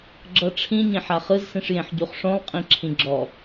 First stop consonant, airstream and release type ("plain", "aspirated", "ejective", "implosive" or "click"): click